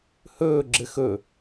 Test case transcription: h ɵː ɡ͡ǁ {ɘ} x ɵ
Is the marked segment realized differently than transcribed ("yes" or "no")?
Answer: no